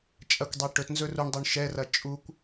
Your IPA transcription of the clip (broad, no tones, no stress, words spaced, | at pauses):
t͡ʃʼɐkʷdˤɛ ʈɵtnzɵ ruɳdˤuɳ ʃɛrɐ t͡ʃʼukʷ